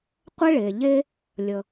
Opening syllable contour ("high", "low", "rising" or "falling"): high